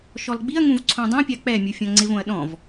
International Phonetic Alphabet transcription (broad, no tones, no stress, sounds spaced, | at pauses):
ʃ ɔ l ɡ͡b i ɐ̯ ŋ ũ v ǀʰ õ dˤ õ pʲ a k͡p ɛ mʲ u fʲ ɔ̃ ŋ͡ǀ ɪ v õ ɐ̯ ɗ ɔ̃ v